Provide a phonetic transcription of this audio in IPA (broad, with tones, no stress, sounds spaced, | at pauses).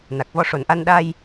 n a˨˩ k̚ v ɔ˧ ʂ o˨˩ n ʔ a˧ n ɗ a˧ j